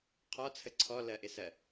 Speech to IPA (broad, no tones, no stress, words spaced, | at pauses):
qʰɔt͡sʰə ǀʰɔlɜʔɪsɜ